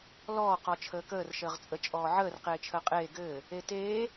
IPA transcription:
lɔː qɔt͡ʃʰəːkəːr ʃəːʁt͡sʼə t͡ʃʼɔːʕəːr qeːt͡ʃʰəːqʼeː ɡɘː | eteː

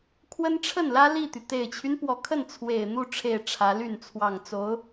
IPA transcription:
kʰwə˥nʈ͡ʂʰə˥˩nlä˥ li˥˩t̪y˩ t̪e˨˩ɪ̯t͡ɕʰy˦n pwɔ˧˥kʰə˥˩n t͡sʰwe˨˩ɪ̯n̪u˥˧ ʈ͡ʂʰe˥˩ɪ̯ʈ͡ʂʰä˧˥ly˥˩n t͡sʰwɑ˨˩ŋt͡so˧˥ʊ̯

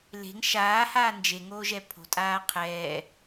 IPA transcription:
le̤ŋ ʃaːhaː nd͡ʒeŋoːʒɛ pʰo̤tʼaː qʰɛː

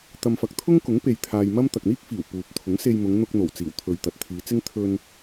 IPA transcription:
t̪ɐ˧mfɐ˧k̚ t̪ʰʊ˥ŋkʊ˨˥ŋ pe˧jt̪ʰaː˧j mɐ˥m t̪ɐ˨k̚n̪iː˥k̚fiː˨˩w puː˨p̚t̪ʰʊ˨˥ŋse˧jmʊ˨˧ŋ n̪ʊ˧k̚n̪o˨˩wt͡siː˨˩w t̪ʰɵ˨ɥt̪ɐ˨t̚t̪ʰiː˨˧t͡sɪ˥ŋ t̪ʰɵ˧n

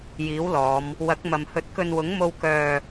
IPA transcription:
jiː˨˥wlɔː˨˧m | wɐ˨˥k̚mɐ˨m hɵ˨˥t̚kɵ˧nwʊ˨˥ŋ mo˥w kœː˧

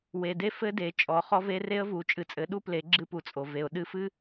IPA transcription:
we˨de˦ fɘ˦de˨ t͡ʃʼɔ˨χɔ˦ve˦ re˦ə̯vu˨˦ t͡ʃʼɨ˨t͡sʼɘ˨˦ ɗu˦ple˨˦ ɡ͡ǁɨ˦pu˨t͡sʼo˨ ve˨ʊ̯ ɗɨ˦fɨ˦

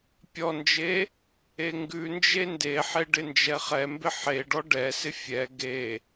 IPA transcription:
pʲɔnd͡ʒe | eŋɡʉnd͡ʒe ndeħe ɖɪnd͡ʒɛχɛmbɪ ħeɖɔ ɖɛsɪ fʲɛ ɡe

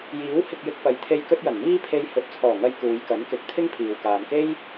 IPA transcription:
jiː˨˥whɪ˧k̚jɪ˧k̚pɐ˨j t̪ʰe˧j kɵ˥t̚jɐ˨˩n miː˥pʰe˧j hɵ˨˥t̚t͡sʰɔː˨˩ŋɐ˧j kuː˨˧jkɐ˨˥nkɪ˨˥k̚ t̪ʰɪ˥ŋpʰiː˨wkaː˨mke˥j

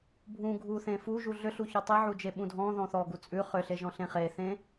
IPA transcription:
bʱũ ɡʱu θẽfuʒu ɮʏɬu çɔtˤeʕud͡ʒe ɓũdʱɔ̃ ðɔ̃θɔɡu t͡sʼʉ χʏɬe ʒɔ̃ɬẽχeθẽ

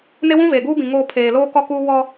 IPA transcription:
ne˦ wũ˦veː˨ɡuː˦bĩ˨ ŋoː˦˨ pʰeː˨loː˦ kɔ˦kuː˦ wɔ˦

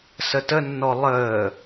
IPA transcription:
sətənːɔ lˠəː

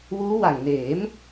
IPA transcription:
wuː˦˥wa˨˩ŋneː˩˦m

